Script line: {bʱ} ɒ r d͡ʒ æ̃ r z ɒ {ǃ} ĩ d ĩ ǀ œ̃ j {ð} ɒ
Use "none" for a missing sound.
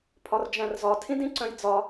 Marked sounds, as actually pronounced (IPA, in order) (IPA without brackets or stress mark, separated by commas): pʰ, tʰ, d͡z